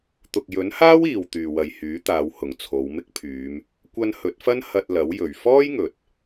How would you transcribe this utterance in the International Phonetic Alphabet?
t̪ ʊ˨ k̚ j ɵ˨˥ n h aː˥ w iː˨ w t̪ yː˨ w ɐ˨ j h yː˨˥ t̪ aː˨˧ w h ʊ˨˩ ŋ t͡sʰ o˨˧ w m ɪ˥ k̚ pʰ yː˨˧ m | kʷ ɐ˧ n h ɵ˨˥ t̚ f ɐ˥ n h ɐ˧ t̚ l ɐ˨˥ w j ɵ˨˩ ɥ f ɔː˥ j ŋ ɵ˨ t̚

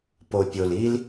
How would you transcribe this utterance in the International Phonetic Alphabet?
p o˨ pʲ o˨ l i˦ l

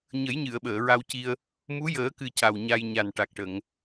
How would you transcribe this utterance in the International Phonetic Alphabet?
ɲ ə˨˩˦ j ɲ ɨ˨˩˨ ə̯ ɓ əː˨˩˨ ɹ a˧ w c i˧ ə̯ | m u˧˥ j əː˨˩˦ k ɨ˨˩ c a˨˩ w ɲ a˧ j ɲ a˨˩ n ʈ a˨˩ k̚ ʈ ə˨˩˨ ŋ

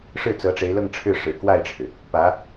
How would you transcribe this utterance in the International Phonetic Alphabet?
ʂ ɻ̩˥˩ t͡s ɤ˧˥ ʈ͡ʂ e˧˥ ɪ̯ l ɤ˥˧ ŋ ʈ͡ʂʰ ɻ̩˥˩ ʂ ɻ̩˨˩ k w a˥˩ ɪ̯ ʈ͡ʂʰ ɻ̩˩ | p ä˧˥

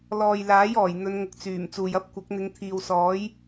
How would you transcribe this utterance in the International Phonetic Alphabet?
l ɔː˨ j l aː˨˥ j ɔː˨˩ j n̪ ɵ˨˧ n ŋ ʊ˨ k̚ t͡s yː˨˩ m t͡s uː˨ j ɐ˥ p̚ kʷ ɐ˨˥ k̚ n̪ ɪ˨˧ ŋ t̪ʰ iː˨ w s ɔː˨˥ j

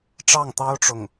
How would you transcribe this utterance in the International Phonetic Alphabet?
ʈ͡ʂ ɑ˥˩ ŋ t̪ ɑ˥ ʊ̯ ʈ͡ʂ ʊ˥˩ ŋ

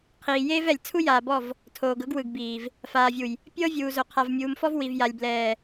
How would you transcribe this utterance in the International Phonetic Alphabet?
qʰ iː˨ j eː˦ v ɛ˨ lʲ t͡sʰ u˦ j aː˨ b ɔ˦˨ v | tʰ oː˨ ɡ ɤ˦ ɡ w ɯ˨ ɡ b iː˨ v | f aː˨ vʲ u˨ j | pʲ ɤ˦ vʲ uː˨ z o˨ qʰ a˨ v mʲ uː˨ m f ɔ˦ v w i˨ v j a˨ lʲ b l ɛː˨

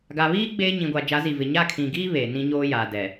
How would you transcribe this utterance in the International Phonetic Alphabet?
ɡ a˨ β iː˦ ɡ͡b eː˦ ɲ ĩ˨ ɡʷ a˨ d͡ʒ a˨˦ z i˨ v ɪ˨ ɲ a˦˨ kʰ ĩ˨ ɡ iː˦ β eː˨ n ĩ˦ ɲ oː˦ j a˨ d ɛ˨

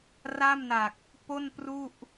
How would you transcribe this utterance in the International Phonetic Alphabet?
r a˥˩ m n a˨˩ k̚ | p o˥˩ n p r u˥˩ ʔ

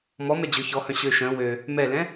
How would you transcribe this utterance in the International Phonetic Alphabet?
m ɔ m ɛ d͡ʑ ɵ ç ɔ h œ̃ ɕ ø ʃ œ̃ w ø | m ɛ l ɛ̃

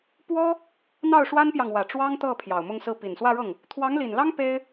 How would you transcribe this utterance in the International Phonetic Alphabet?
p w ɔ˥ | n̪ ɑ˥˩ ʊ̯ ʂ w a˥ n p j ɑ˨ ŋ w ä˨˩ ʈ͡ʂ w ɑ˥ ŋ t̪ ɤ˥˩ pʰ j ɑ˨˩ ʊ̯ m ʊ˥˧ ŋ s ɹ̩˥˩ p i˨˩ n s w ä˥˧ ɻ ɤ˥˩ ŋ | t̪ʰ w ɑ˧˥ ŋ l i˨˩ n l ɑ˥ ŋ p e˥ ɪ̯

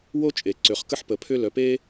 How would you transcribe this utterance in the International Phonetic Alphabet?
w o˥ t͡ʃʼ e˩ ǀ ø˩ χ k ə˥ ħ p ə˩ pʰ ʏ˥ l œ˩ p e˥

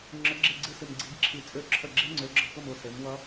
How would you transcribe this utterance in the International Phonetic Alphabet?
ŋ͡ǁ ə˨˥ ɡ͡ǁ e˥˩ ɡ͡ǀ ɨ˥˩ s ɨ˧˩ m ɡ͡ǀ i˨˥ ɡ ǁʰ i˧˩ t͡sʼ ø˧˩ ǁʰ ə˧˩ ɡ͡ǁ e˦˥ ŋ͡ǀ ø˨˥ ɡ͡ǁ ʌ˧˩ k ʊ˥˩ m ʊ˥˩ s e˨˥ m w ʌ˦˥

